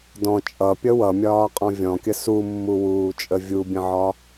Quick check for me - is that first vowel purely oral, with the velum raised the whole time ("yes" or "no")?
no